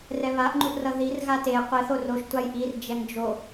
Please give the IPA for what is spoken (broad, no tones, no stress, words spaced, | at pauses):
rɛβaʔŋ͡ǃuʔrʌ ðir ɣate qʷɛθo roʃ tʷajʔird͡ʒɛŋ d͡ʒo